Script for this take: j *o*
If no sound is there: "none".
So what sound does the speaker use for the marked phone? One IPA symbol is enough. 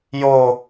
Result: o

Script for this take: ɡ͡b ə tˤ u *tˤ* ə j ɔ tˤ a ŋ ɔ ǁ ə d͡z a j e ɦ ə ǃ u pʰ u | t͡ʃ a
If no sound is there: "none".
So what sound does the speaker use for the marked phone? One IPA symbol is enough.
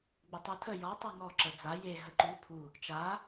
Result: tʰ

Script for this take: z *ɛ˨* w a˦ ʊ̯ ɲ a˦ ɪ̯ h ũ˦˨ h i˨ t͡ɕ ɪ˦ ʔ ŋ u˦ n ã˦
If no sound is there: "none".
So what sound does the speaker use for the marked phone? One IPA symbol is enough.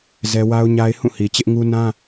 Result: ɛ˦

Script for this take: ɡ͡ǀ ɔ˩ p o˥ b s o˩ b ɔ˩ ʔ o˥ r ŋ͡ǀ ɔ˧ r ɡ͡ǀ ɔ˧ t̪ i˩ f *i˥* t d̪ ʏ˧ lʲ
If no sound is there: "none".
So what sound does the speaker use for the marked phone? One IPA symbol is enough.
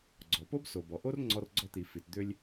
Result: i˩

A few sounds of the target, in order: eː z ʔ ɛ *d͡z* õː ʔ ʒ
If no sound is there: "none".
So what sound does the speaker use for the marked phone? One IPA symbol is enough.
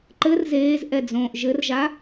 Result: d͡z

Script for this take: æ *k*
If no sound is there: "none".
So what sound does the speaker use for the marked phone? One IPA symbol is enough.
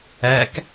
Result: k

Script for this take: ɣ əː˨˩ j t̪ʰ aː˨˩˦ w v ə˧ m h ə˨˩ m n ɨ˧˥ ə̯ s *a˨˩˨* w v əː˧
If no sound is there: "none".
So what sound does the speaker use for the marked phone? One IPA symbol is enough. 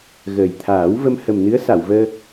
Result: a˨˩˨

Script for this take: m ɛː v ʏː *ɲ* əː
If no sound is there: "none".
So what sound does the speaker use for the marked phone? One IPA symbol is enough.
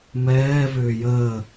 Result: j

